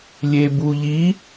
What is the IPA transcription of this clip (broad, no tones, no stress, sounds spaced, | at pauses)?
lʲ e b u ʎ i